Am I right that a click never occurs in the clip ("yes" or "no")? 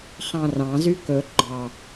no